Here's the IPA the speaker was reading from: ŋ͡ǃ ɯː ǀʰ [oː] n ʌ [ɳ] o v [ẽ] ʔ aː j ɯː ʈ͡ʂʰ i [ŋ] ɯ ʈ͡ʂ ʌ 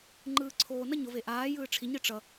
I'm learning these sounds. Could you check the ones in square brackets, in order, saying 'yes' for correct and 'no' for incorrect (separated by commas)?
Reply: yes, no, no, no